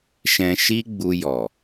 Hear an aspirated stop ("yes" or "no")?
no